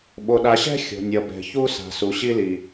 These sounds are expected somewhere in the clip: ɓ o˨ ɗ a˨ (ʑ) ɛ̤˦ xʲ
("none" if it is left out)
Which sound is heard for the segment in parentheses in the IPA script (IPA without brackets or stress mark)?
ɕ